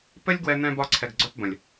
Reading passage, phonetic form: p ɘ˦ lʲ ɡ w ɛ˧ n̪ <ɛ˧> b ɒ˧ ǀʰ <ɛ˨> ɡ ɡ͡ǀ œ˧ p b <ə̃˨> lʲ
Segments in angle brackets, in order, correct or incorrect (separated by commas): incorrect, correct, correct